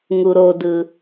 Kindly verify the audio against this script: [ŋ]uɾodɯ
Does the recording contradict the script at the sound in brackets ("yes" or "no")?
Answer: no